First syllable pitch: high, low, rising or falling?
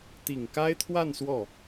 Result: low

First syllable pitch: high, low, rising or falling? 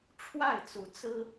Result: falling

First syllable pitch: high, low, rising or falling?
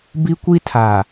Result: high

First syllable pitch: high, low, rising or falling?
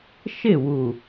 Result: falling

